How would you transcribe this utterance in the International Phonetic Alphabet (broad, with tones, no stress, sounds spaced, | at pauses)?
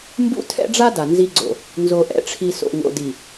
m b ṵ˦ tʰ ɛ̰˦ ɖ͡ʐ a˦ d a˨ n z i˦ ɡ͡ǀ o̰˨ | n z o˨ ʔ ɛ̰˨ ʈ͡ʂʰ i˨ s o̰˨ ŋ o̰˨ d i˨